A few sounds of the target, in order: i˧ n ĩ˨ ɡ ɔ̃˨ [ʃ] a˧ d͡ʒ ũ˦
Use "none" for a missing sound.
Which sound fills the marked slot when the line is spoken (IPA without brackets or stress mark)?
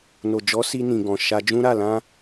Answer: ʃ